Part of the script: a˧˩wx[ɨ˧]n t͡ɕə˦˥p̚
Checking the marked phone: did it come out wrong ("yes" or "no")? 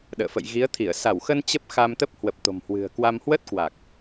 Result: yes